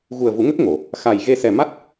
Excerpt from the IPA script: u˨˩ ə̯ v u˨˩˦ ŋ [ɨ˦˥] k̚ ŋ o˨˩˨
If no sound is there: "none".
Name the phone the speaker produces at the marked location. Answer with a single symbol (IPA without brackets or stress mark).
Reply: ə˦˥